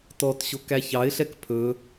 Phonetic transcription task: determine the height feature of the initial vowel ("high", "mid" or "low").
mid